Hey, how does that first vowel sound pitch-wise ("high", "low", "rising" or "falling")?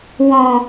low